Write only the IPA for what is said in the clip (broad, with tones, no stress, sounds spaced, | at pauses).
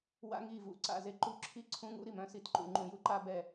w a̰˦ ŋ i˨ v ṵ˨ ǀ a̰˨ z e˦ ǃ u˦ ǁʰ i˦ ǀʰ ũ˦ ŋ ṵ˦ ɾ i˨ m œ̃˦ s i˨ t ǃ ṵ˨ ŋ͡ǃ ũ˨ j u˦ ǃ a˦ b ɛ˨